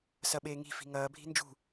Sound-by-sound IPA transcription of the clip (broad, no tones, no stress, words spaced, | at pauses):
sɐɓeːŋi̤ fi̤ŋɐː bʱi̤nd͡ʒṳ